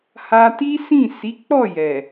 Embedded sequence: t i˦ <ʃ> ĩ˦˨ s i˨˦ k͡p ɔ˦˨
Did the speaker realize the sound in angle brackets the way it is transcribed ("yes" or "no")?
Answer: no